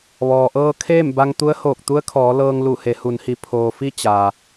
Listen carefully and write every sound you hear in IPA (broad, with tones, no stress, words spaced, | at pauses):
ʋɔː˩ʔɤː˧ kʰeː˥˨mba˧ŋ t̪u˧˥ə̯hoː˧˩k̚ t̪u˧˥ə̯kʰɔː˩˧ lɤː˧ŋlu˧˩ he˩˧hu˩˧nhi˩ pʰoː˩fi˧ t͡ɕaː˩